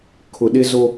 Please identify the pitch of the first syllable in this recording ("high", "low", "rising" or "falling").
low